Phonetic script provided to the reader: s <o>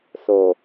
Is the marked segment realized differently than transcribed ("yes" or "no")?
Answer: no